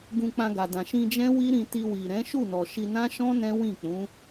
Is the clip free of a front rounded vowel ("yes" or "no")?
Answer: yes